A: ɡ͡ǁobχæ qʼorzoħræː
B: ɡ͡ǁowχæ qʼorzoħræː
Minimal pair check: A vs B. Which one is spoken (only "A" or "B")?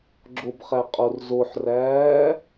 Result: A